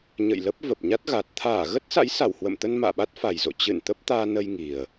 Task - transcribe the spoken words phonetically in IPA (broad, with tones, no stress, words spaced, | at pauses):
ɲə̰˧˨jlə˦˥p̚ və˨˩p̚ɲa˦˥t̚ɣa˨˩t̚ t̪ʰaː˧˩ɣə˦˥t̚sa̰˧˥j sa˧˩whwə̰˧˨mt̪ə˧n ma̰ː˧˨ɓa˦˥t̚fa˨˩jzo̰˧˨ t͡ɕɨ̰˧˨n t̪ə˦˥p̚t̪aː˧nə˧j ŋi˨˩ə̯